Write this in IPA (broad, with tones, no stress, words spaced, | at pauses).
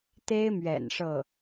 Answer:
t̪e˥ɪ̯mɥɛ̰˨˩n ʂɤ˥˩